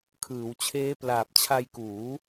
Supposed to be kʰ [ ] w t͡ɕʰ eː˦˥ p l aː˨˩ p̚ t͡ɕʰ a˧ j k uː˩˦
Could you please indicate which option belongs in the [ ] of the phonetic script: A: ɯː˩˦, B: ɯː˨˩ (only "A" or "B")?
A